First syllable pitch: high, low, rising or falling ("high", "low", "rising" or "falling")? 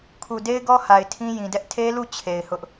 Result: low